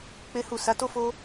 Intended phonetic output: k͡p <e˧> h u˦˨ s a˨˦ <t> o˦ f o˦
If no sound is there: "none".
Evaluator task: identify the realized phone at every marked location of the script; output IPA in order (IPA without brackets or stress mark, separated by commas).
e˦, t